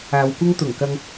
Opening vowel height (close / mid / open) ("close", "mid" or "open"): open